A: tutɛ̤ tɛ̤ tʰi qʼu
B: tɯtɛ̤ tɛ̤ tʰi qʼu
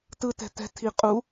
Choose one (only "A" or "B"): B